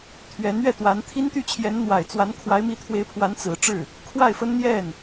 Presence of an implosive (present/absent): absent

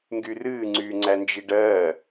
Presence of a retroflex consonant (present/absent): present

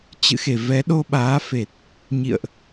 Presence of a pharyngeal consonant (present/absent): absent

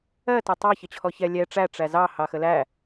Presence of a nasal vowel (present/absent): absent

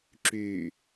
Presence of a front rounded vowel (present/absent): present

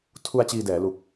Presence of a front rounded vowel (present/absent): absent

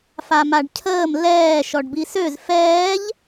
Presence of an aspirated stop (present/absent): present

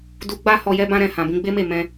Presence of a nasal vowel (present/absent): present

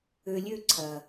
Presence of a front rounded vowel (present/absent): present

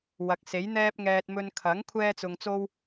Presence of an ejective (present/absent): absent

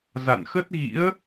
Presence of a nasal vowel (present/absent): absent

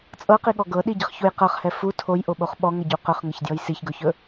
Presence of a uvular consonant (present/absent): present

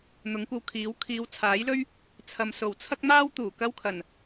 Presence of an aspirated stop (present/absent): present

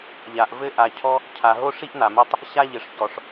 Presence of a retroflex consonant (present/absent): present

